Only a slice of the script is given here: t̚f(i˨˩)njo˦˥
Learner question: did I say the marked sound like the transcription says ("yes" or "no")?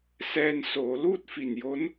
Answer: yes